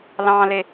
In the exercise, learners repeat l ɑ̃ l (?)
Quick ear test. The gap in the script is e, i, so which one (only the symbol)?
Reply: e